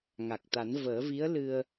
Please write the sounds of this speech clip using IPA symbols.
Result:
ŋ a˨˩ k̚ t̪ a˨˩˦ n v əː˨˩˦ v i˧˥ ə̯ l ɨ˧ ə̯

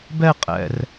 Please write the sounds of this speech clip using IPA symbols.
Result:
b ɛ qʼ ɛ̰ r

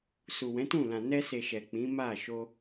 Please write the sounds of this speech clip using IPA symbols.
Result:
s u˨ w ɛ̃˨˦ t ũ˦˨ l ã˨ n ɛ˧ s e˨ ʃ ɛ˨ k͡p ĩ˨˦ m a˦˨ ʃ o˧

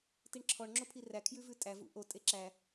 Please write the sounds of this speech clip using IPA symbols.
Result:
t i ɳ ǁʰ ɔ ɳ ŋ͡ǁ o pʰ i r æ kʰ j ʉ v ʉ tʼ æ v ṵ ʔ o tʼ e ǁ æ

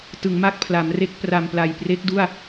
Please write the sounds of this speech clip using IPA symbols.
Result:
t ɯ˩˦ ŋ m a˥˩ k̚ pʰ l a˩˦ m r e˦˥ k̚ p r a˨˩ m p l a˨˩ j p r e˦˥ k̚ d u˥˩ a̯

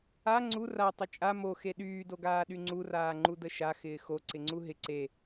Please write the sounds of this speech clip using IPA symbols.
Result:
a ŋ͡ǀ u r a tˤ ɪ t͡ʃʼ a m o x e ɗ yː d o ɡ aː ɗ y ŋ͡ǀ u r aː ŋ͡ǃ u d ə ʃ a x ɪː x o ǀ ɪ ŋ͡ǀ u ɦ ɪ ǀ e

